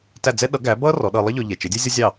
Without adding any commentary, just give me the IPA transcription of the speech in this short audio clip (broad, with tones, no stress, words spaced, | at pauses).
tæ˥˩d͡zɛ˥ ɗʌ˩˥ ɡæ˩˥bʌ˥ rɔ˩˥ɗʌ˧ lˠʌ˥ ʎɔ˧ʎɛ˩ t͡ʃɪ˩˥dʲɛ˥zʲʌ˥zʲɑ˥˩